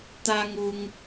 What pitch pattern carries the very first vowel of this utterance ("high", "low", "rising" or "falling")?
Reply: high